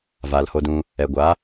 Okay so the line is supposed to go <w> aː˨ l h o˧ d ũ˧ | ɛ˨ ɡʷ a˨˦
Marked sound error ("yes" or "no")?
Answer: yes